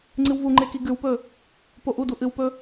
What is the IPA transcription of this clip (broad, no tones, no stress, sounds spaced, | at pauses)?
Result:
ŋ͡ǀ ɨ w v u ŋ͡ǃ e k i ɡ ʉ w p ɵ | p o ʔ u d u ʔ ɨ w p ɵ